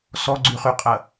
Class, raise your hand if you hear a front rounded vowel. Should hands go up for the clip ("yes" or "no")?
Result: yes